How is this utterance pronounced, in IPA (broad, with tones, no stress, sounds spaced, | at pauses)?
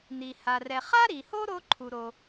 n̪ i˩ h a˩ r ɛ˩ χ a˥ ɾ i˩ h o˥ ɾ o˥ ǃʰ u˩ ɾ o˩